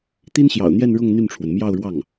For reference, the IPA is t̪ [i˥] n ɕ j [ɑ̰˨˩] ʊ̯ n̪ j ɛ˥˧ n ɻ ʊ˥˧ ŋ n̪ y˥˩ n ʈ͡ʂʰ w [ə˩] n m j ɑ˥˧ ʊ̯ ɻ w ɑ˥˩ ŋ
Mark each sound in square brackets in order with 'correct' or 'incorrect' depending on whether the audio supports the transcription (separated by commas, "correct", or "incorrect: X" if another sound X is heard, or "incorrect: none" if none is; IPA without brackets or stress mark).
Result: correct, correct, correct